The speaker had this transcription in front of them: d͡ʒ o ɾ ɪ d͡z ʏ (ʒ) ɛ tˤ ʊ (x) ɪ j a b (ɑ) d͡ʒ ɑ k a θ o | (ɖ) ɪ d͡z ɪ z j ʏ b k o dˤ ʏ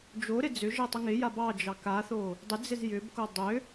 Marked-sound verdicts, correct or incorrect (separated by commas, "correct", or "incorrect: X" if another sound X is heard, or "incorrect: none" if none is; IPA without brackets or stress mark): correct, incorrect: ŋ, correct, incorrect: dˤ